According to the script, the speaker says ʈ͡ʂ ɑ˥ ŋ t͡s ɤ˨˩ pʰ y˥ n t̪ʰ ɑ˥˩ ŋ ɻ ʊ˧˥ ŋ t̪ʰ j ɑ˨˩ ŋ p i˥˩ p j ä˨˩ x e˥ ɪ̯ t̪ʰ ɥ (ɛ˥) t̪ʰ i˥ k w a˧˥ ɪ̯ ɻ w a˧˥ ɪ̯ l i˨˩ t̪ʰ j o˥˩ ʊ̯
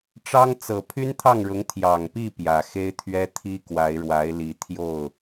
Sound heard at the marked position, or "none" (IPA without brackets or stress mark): ɛ˥